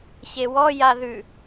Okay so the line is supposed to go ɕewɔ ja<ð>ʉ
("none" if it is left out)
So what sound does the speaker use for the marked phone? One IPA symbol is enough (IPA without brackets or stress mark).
ð